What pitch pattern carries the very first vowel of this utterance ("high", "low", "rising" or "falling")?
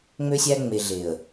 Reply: high